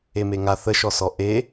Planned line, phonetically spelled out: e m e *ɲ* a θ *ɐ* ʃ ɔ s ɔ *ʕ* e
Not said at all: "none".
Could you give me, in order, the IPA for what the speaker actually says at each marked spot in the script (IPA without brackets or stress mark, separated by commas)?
ŋ, ə, ʔ